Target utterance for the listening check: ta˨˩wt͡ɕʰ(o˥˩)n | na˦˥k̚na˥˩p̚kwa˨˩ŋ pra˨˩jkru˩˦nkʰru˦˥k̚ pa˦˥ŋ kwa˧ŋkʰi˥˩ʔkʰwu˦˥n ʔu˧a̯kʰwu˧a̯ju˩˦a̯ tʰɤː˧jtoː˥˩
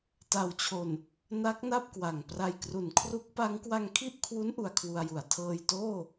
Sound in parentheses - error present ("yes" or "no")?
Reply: yes